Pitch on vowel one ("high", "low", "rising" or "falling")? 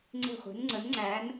falling